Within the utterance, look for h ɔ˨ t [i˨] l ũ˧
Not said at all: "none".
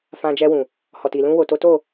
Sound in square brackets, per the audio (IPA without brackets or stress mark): i˨